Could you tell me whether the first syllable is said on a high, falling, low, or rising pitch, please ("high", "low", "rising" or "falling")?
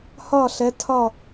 falling